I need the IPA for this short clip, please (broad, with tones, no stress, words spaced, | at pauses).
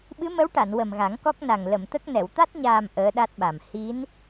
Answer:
ɓɨ˧˥ mə˧˥wʈa˨˩˨n wə˨˩mɣa˨˩˦ŋkɔ˦˥k̚na˨˩ŋ lə˨˩˨mt̪ə˦˥k̚nɛ˨˩˨w t̪a˦˥t̚ɲaː˨˩m ʔəː˧˥ɗa˦˥t̚ɓa˨˩m hi˧˥n